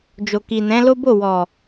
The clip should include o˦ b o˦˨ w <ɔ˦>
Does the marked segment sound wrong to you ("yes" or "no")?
yes